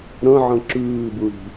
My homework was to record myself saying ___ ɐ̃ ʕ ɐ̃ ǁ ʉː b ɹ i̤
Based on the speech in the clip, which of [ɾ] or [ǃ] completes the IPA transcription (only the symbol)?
ɾ